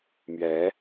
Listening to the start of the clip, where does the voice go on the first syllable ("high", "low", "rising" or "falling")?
rising